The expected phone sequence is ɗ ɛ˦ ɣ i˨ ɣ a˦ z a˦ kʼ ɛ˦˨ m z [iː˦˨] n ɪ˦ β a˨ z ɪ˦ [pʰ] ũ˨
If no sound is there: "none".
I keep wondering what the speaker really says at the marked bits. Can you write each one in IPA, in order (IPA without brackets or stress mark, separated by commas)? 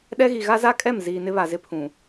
iː˨, pʰ